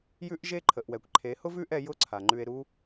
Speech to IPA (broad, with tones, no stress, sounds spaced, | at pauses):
j ʉ˦ ʔ ʒ e˦ ǃʰ ə˨ ʔ w ɛ˨ kʷ ǃʰ e˨˦ h ʊ˦ v ʉ˦ ʔ ɛ˧ j ʊ˦ ǀʰ a˨ ŋ͡ǃ ʉ˧ e̯ ɾ u˦